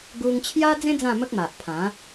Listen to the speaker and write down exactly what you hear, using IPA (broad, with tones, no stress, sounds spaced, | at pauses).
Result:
ɡ u˦ ŋ t͡ɕʰ j a˦ d͡z ẽ˦ d͡z ã˥˧ m ə˦ k̚ m a˨ ʔ pʰ ã˨˦